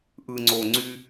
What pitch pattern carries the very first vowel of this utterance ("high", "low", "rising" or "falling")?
low